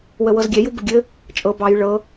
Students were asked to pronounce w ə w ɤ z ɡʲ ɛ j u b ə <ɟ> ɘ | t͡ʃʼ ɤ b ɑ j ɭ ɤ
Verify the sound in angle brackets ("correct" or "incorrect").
incorrect